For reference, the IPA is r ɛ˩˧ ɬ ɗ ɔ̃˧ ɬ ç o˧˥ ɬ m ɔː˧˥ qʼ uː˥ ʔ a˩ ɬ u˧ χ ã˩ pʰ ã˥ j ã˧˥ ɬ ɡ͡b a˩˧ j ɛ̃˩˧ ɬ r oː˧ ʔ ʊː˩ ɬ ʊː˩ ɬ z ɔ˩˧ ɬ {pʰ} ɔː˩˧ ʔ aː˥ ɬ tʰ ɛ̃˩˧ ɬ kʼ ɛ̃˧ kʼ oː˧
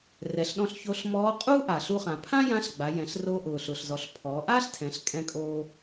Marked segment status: correct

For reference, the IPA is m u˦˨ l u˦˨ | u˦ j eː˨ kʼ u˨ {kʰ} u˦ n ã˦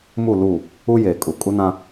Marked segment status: incorrect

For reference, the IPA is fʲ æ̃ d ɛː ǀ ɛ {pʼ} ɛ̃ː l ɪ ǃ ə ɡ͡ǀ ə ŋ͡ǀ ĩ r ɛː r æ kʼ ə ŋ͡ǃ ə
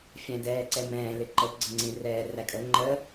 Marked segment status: incorrect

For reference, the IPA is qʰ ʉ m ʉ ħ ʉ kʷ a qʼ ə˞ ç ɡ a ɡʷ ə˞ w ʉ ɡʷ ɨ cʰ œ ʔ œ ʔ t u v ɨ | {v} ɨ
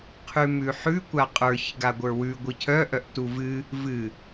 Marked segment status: correct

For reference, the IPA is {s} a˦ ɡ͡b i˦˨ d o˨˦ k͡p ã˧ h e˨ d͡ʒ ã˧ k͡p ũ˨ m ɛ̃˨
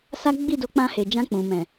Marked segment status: correct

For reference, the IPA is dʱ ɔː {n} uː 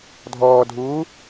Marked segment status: incorrect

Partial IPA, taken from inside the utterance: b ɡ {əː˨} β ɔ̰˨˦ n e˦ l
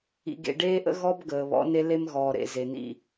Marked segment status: correct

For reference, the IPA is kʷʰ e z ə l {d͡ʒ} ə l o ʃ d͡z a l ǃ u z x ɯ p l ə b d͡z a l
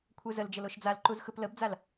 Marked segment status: correct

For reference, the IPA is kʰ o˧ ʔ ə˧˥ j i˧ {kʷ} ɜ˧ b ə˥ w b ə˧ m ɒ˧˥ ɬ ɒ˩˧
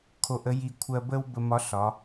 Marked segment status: incorrect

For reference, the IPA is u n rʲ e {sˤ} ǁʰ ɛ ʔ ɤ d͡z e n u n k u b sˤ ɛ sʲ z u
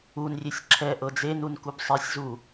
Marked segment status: incorrect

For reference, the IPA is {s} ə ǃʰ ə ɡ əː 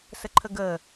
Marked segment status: correct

